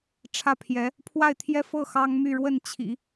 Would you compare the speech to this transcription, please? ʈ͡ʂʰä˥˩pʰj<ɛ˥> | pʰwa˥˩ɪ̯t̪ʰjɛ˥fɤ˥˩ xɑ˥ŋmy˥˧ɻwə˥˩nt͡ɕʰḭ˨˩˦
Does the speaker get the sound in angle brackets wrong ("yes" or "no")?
yes